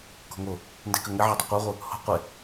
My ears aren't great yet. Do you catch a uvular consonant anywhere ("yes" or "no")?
yes